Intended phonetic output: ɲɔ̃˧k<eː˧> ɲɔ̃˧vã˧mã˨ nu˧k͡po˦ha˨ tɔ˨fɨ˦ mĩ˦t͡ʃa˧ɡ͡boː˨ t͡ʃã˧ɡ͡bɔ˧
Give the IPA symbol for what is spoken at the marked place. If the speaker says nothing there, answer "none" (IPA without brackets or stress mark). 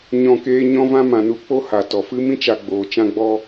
eː˧